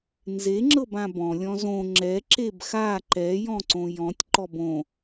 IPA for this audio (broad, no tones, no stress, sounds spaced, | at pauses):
n z e ŋ͡ǁ ɤ b ã b ɔ̃ lʲ ɔ̃ z õ ŋ͡ǁ ɛ ǁ e b x a ǃ ɛ j ɔ̃ ǀ õ j ɔ̃ tʲ ǃ ɔ b õ